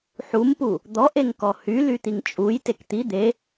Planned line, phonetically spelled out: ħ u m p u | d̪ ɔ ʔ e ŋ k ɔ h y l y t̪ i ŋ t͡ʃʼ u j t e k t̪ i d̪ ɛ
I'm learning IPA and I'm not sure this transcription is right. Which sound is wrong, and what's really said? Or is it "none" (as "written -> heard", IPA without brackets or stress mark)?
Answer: ɛ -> e